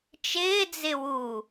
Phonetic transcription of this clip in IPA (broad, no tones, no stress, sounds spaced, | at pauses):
t͡ʃ ɪː d͡z ɪ w u